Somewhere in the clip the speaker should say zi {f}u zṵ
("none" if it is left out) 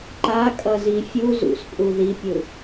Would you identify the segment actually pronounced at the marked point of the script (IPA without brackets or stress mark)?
fʲ